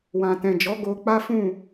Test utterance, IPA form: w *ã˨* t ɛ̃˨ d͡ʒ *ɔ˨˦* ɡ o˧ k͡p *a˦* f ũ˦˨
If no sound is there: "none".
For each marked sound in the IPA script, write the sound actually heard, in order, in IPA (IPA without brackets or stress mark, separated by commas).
ã˨, ɔ˨˦, a˦